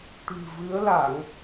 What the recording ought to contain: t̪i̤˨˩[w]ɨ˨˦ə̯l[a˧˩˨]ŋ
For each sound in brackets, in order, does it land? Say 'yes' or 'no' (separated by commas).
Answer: no, yes